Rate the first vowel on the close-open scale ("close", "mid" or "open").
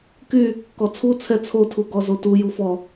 close